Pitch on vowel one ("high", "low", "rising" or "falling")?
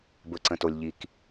low